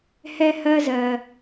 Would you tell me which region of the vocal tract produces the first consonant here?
throat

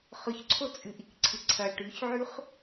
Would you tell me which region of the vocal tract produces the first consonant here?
uvula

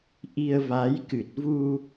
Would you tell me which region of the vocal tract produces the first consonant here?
throat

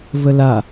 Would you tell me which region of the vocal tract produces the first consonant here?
lips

